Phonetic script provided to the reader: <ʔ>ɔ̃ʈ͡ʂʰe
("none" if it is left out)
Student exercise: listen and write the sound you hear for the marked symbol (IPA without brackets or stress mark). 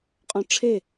qʼ